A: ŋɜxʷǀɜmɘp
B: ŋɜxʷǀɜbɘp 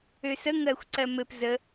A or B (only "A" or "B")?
A